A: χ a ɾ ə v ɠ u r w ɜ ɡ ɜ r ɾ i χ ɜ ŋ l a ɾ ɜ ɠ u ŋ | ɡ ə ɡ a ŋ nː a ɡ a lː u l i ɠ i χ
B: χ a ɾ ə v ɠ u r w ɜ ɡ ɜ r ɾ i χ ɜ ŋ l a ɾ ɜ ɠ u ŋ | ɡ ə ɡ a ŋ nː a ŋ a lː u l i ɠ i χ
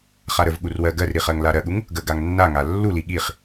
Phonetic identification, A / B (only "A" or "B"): B